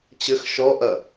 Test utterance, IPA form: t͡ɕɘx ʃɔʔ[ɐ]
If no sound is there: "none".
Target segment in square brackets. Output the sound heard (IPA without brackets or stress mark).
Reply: ɐ